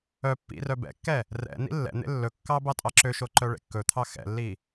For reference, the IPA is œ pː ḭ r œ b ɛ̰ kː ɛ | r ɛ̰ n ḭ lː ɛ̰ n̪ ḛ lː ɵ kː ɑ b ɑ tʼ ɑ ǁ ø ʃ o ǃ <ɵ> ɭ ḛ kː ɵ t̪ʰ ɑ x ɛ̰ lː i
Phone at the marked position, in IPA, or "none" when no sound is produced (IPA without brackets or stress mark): œ